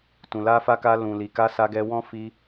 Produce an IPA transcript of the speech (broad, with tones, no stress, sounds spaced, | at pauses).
t ũ˨ l a˧ f a˧ k a˧ l ũ˨ l i˨ k a˧ s a˧ ɡ ɛ˧ w ɔ̃˦ f i˧